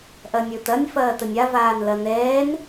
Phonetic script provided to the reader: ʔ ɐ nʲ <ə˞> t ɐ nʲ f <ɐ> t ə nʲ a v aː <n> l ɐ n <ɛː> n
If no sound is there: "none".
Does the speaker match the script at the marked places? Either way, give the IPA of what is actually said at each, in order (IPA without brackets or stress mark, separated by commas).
ə˞, ɐː, n, ɛː